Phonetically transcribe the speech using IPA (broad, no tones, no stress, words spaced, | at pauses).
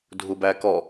dʱubækɔ